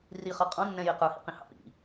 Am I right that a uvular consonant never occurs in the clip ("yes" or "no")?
no